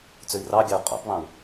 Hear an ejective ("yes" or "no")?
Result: yes